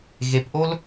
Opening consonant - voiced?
yes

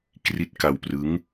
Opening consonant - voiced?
no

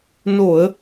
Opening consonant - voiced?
yes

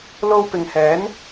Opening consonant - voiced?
yes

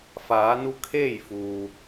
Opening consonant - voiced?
no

